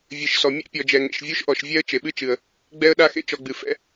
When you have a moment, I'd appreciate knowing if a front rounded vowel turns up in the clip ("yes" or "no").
no